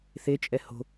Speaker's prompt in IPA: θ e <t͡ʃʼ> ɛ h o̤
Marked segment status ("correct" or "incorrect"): correct